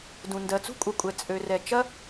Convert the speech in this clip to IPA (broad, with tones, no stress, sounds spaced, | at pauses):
d ũ˩ n d ɜ˩ t͡s ṳ˥ kʷʼ ɐ˩ kʷʼ ɛ˩ t͡sʼ ø˩ r ɛ˩ t͡ʃ ɐ˥